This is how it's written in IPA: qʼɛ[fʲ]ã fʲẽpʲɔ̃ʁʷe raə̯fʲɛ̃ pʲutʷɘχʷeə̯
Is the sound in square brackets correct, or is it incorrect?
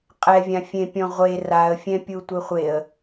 incorrect: vʲ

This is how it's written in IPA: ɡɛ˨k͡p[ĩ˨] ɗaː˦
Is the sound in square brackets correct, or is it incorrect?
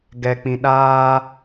correct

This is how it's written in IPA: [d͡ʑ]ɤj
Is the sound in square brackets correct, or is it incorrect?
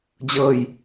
correct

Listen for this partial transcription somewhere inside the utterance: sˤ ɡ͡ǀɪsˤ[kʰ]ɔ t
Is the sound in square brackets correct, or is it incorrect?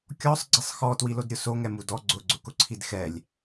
incorrect: x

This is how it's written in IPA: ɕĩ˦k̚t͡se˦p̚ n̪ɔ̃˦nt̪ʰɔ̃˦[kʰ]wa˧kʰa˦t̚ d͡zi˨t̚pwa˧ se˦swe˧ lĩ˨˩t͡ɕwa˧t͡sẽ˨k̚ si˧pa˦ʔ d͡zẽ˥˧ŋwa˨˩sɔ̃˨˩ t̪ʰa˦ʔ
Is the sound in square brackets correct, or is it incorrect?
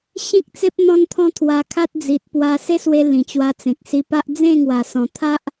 incorrect: t̪ʰ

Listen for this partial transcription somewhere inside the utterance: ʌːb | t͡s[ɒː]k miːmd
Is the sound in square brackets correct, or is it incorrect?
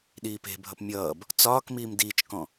correct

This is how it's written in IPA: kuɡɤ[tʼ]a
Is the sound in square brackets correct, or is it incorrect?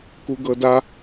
incorrect: d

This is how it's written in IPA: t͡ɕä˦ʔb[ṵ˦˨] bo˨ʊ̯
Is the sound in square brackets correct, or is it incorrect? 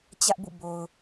correct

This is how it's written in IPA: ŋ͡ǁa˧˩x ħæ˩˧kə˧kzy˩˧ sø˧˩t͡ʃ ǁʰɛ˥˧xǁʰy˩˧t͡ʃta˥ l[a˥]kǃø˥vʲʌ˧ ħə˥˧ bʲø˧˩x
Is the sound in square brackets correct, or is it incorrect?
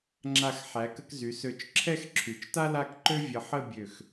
incorrect: a˥˧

